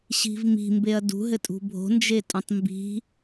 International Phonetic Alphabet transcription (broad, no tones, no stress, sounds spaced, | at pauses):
ɕ i̤ v m i̤ m b e ɐ̯ d ṳ ɦ ɘ tʼ ṳ bʱ o̤ n d͡ʒ e tʼ õ tˤ m b i̤